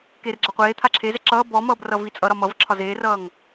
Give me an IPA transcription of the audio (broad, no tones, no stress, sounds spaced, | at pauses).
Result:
k eː r ɡ͡ǁ a qʷ eː t̪ʰ a ǁʰ e z ɛ ǁ ʌː b ɔ m ʌː b r ʌ v i t͡sʼ ʌ ɾ ɒ m ʌ v ǁʰ ɒ z eː r ʌː ŋ